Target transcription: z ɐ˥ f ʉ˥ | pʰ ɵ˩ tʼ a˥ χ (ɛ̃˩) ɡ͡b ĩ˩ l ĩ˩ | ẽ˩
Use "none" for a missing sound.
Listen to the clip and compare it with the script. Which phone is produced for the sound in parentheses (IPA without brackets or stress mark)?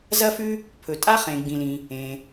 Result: ẽ˩